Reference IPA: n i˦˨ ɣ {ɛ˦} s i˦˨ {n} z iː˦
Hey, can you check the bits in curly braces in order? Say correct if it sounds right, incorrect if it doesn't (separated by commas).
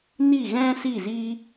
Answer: incorrect, incorrect